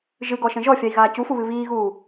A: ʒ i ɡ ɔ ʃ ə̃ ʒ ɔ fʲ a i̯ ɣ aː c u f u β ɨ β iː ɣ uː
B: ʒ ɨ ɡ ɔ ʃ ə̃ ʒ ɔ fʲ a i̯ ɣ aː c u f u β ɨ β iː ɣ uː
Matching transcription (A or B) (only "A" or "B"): B